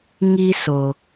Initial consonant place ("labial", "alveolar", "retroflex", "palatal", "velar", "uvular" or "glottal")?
velar